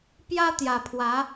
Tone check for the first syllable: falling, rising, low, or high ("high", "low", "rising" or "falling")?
high